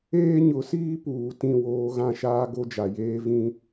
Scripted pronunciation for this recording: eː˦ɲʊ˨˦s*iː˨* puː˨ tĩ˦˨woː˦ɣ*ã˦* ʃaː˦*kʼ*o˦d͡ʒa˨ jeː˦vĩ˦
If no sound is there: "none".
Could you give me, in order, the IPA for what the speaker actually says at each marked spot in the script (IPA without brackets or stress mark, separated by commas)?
iː˦, ã˦, ɡ